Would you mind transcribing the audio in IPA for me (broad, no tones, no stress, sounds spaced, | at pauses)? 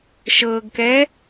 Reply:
ʃ ɤ ɡ k ɛ